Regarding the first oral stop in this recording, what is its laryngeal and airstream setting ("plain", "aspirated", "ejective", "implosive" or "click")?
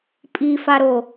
ejective